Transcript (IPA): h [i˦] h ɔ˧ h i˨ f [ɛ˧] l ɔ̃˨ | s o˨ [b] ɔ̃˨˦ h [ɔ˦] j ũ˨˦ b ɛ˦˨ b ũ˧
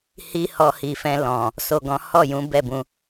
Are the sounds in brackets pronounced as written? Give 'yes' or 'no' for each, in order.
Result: yes, no, no, no

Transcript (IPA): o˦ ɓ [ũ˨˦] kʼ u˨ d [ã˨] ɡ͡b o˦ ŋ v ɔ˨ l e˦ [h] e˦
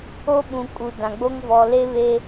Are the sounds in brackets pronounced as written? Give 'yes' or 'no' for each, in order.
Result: no, yes, no

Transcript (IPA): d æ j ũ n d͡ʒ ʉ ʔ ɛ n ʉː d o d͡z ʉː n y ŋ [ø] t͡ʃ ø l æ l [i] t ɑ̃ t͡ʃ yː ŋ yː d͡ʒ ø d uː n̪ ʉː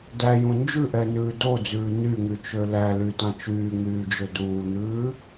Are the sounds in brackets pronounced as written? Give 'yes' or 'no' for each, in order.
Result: no, no

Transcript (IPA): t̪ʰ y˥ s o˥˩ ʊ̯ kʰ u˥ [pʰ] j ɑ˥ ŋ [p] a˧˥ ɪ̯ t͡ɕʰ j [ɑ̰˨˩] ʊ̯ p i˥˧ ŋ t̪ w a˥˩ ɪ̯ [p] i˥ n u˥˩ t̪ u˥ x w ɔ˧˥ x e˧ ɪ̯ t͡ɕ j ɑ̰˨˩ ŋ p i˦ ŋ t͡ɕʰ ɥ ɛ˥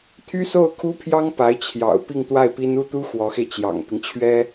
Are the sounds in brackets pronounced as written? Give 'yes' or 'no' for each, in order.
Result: yes, yes, yes, yes

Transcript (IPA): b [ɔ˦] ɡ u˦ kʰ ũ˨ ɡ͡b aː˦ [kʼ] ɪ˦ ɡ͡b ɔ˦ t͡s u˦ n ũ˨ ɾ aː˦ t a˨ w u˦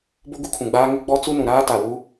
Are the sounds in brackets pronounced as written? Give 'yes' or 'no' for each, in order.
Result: no, no

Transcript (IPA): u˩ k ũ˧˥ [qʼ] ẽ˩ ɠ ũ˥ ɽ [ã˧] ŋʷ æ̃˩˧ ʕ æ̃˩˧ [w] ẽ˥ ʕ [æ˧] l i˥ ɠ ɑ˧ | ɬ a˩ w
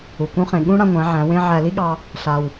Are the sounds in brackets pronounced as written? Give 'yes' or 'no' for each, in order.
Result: no, yes, yes, yes

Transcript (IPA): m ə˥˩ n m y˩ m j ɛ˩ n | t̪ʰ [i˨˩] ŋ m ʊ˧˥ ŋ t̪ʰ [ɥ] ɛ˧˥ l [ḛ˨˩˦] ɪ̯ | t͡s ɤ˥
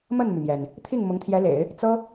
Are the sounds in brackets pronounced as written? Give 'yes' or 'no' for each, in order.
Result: no, no, yes

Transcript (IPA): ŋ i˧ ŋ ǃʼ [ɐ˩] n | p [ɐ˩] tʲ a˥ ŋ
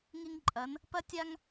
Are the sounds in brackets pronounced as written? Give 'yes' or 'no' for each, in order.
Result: no, no

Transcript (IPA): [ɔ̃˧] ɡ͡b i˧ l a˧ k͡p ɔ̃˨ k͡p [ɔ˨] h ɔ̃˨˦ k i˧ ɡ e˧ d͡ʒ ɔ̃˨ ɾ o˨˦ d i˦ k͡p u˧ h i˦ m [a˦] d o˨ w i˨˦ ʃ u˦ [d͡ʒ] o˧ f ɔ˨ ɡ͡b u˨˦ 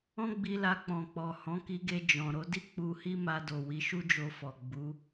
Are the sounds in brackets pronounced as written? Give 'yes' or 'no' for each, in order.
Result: no, yes, no, yes

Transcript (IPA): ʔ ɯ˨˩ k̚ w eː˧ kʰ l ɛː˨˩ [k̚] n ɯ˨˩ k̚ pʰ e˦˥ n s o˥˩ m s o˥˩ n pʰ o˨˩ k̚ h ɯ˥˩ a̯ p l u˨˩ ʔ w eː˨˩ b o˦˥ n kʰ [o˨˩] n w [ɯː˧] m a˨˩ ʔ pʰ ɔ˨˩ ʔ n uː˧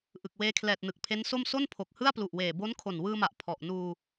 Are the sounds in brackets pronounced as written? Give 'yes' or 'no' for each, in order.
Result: no, yes, yes

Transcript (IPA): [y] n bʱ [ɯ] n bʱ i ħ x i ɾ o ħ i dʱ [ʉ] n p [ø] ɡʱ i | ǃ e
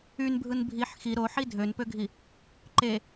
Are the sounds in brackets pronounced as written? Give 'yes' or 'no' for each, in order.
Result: yes, yes, no, yes

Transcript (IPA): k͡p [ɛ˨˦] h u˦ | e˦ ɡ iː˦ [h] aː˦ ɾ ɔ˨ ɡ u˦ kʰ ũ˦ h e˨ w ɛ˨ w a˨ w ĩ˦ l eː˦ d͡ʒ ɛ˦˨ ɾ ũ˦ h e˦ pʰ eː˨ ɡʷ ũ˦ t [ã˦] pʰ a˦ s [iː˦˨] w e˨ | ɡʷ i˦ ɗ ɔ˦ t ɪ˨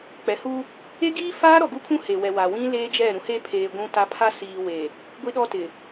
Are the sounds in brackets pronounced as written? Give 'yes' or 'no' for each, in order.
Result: yes, no, no, no

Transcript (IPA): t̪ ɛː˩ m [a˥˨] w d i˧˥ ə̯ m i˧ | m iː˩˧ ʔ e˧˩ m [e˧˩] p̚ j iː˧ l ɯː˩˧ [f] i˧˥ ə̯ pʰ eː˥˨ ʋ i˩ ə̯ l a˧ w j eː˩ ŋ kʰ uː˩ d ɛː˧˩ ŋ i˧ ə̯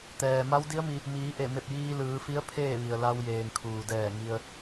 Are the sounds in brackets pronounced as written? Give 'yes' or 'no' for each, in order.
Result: no, yes, yes

